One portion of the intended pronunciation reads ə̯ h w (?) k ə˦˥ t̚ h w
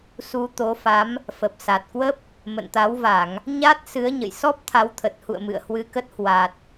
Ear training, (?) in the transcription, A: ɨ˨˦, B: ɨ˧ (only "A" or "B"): B